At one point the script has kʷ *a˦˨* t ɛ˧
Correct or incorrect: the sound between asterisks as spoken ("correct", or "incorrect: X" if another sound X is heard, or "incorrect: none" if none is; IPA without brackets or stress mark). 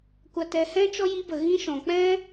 incorrect: a˧